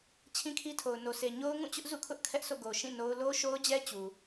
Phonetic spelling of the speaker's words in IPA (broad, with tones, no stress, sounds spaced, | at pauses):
t͡ɕʰ ĩ˦ kʰ i˦ tʰ o˨ ʊ̯ n o˨ sʰ e˨ ɲ o˦ ʊ̯ ŋ ũ˦˨ t͡ɕ ʊ˦ ʔ z ṵ˦˨ kʰ ʊ˦ ʔ kʰ ɛ˦ ʔ s o̰˦˨ ɡ o˨ ʃ ĩ˦˨ n o˦ ʊ̯ l o˦ ʃ o˦ ʊ̯ d͡ʑ ɛ˦ t͡ɕ u˨